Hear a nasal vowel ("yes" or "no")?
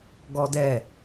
no